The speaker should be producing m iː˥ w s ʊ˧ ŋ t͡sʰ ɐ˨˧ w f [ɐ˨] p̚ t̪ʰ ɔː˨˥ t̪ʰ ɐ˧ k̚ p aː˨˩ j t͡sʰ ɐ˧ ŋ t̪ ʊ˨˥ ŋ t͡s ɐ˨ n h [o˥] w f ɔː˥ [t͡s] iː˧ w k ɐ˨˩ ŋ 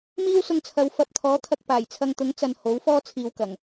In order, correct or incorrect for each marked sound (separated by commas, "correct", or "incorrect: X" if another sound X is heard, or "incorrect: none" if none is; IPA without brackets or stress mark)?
correct, incorrect: o˨˥, incorrect: t͡sʰ